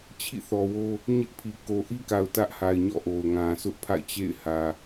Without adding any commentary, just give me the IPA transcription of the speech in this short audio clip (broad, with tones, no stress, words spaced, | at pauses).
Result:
t͡ɕʰḭ˦˨θɔ˨wo˦ | ɲɪ˦ʔpʰi˨ ko˨ʔi˦ka˨ʊ̯ tä˦ʔha˨ɪ̯ ɲɔ̰˦˨ʔo˨ʊ̯ŋã˨ sʰʊ˦ʔpʰa̰˦˨ɪ̯t͡ɕḛ˦˨ɪ̯hä˨